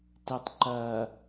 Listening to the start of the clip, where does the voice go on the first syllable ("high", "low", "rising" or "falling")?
low